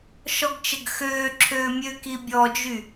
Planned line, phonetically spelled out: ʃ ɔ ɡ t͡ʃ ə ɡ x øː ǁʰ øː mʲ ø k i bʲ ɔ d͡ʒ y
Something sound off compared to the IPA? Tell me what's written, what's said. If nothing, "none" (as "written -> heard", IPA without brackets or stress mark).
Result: none